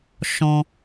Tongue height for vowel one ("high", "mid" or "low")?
mid